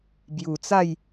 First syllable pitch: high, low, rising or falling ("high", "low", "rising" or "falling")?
low